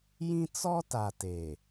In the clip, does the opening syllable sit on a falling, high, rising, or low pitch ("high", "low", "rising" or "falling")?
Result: high